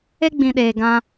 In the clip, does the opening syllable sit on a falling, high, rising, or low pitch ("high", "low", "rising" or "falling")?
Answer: high